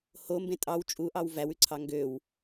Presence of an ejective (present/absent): present